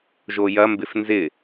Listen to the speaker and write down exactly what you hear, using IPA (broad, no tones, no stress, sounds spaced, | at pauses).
ʒ o j ɐ m b ɪ f n z ɪ